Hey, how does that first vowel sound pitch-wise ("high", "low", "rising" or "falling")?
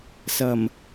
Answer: low